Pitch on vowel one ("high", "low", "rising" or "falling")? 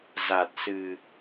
low